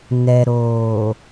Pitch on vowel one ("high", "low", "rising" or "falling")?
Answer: low